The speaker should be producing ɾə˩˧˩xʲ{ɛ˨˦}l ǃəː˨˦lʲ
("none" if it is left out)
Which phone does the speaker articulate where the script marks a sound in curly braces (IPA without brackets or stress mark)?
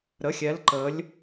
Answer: ɛ˨˦